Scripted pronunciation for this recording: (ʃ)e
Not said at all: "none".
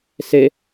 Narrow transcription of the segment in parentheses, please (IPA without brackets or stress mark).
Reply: s